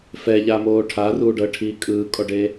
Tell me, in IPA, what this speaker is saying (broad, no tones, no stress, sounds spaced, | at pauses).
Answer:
f ɛ ʎ a m oː ʈʰ a r uː ɖ ɤ ʈʰ iː kʼ ɯː kʼ ɔ ɖ e